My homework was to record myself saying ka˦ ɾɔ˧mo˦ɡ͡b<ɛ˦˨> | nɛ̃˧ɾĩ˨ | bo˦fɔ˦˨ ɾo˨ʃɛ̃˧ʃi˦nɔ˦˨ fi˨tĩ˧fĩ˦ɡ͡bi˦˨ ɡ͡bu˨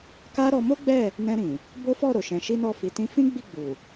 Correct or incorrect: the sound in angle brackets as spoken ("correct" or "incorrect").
correct